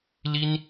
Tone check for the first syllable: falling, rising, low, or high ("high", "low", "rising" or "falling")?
high